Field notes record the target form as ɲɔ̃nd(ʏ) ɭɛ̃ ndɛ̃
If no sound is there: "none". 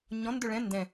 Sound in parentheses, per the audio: ʏ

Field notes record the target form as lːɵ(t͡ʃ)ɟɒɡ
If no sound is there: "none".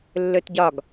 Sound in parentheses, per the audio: t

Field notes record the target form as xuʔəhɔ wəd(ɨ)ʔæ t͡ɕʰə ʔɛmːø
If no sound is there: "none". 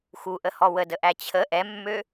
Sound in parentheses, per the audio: ə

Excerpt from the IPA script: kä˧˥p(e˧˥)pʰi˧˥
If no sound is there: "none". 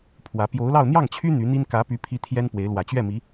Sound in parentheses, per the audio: y˧˥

